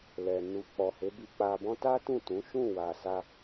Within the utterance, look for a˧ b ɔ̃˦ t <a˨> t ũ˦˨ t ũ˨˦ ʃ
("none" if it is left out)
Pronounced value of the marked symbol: a˦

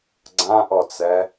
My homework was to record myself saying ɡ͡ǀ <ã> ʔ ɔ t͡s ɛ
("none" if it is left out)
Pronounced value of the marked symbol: ã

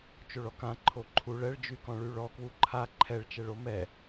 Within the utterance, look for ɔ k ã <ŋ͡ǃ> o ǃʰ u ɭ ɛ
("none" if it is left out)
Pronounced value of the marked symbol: ǃʰ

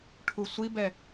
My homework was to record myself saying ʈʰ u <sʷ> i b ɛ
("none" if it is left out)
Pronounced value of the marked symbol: sʷ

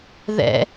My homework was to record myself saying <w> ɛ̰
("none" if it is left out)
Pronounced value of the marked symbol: ð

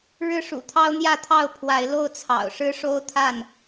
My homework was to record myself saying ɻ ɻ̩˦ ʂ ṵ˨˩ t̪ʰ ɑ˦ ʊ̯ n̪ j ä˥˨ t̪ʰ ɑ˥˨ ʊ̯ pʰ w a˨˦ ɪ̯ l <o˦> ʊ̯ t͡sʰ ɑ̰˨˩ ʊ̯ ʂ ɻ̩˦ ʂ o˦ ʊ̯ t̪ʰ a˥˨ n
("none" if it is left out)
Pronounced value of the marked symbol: o˥˨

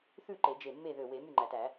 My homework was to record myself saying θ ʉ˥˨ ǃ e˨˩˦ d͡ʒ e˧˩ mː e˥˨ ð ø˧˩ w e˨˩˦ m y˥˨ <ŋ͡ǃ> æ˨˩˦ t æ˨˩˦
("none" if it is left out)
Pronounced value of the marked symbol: ŋ͡ǃ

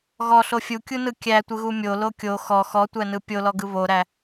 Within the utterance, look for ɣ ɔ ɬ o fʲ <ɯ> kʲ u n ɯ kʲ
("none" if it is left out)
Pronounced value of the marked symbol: u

